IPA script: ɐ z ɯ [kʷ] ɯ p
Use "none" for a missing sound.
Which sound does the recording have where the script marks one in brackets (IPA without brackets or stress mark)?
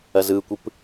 kʷ